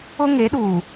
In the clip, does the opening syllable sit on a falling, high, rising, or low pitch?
high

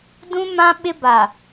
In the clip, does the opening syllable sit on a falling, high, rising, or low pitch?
high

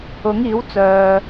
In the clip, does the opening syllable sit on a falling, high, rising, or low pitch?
rising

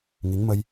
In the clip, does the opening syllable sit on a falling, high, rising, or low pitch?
rising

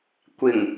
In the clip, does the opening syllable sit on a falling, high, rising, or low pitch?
low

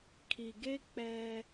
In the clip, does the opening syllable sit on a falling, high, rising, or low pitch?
low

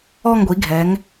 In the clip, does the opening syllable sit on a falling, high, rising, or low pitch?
falling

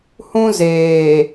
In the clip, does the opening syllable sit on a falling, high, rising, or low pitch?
high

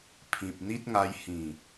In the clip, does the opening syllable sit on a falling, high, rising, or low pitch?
low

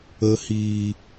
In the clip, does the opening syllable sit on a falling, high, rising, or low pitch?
low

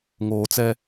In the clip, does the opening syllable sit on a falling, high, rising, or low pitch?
low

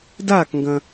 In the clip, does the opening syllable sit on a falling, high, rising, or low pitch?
falling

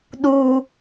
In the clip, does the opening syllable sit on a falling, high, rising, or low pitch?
high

